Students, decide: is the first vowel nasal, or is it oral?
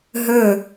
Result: oral